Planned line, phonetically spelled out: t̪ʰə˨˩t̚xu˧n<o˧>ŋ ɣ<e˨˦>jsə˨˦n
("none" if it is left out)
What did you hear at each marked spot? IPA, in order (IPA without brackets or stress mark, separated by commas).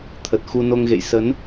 o˧, ḛ˧˨